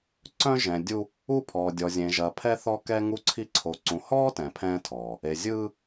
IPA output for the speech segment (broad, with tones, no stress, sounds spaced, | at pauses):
ǀ œ̃˦ ʒ ɛ̃˨ dʲ u˦ | u˦˨ pʰ ɔː˨ dʲ ɔ˨ zʲ ẽ˨ ʒ ɐ˨ pʰ ɛ˦ θ ɔ˦ k ɛ˦ ŋ u˦ ǀʰ i˦ ǀʰ o˨ ǀ ũ˨ h ɔː˦ t ɛ̃˨ pʰ ɛ̃ː˦ tʰ ɔː˨ | e˨ zʲ ɯː˦